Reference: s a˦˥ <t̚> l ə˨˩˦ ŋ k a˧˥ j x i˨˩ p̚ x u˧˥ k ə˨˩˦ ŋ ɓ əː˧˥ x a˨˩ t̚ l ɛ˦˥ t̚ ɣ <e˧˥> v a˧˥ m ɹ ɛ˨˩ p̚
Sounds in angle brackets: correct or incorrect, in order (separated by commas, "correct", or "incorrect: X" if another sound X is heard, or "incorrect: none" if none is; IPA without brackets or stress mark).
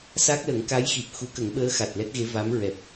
incorrect: k̚, correct